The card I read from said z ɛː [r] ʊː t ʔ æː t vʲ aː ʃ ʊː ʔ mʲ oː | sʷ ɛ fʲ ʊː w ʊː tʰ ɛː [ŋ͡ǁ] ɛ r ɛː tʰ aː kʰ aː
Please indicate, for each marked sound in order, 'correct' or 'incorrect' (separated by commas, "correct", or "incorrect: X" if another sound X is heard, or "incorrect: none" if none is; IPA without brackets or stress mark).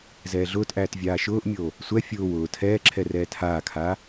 incorrect: ɮ, incorrect: ǁʰ